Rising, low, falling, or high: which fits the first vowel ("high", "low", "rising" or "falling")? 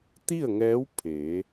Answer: falling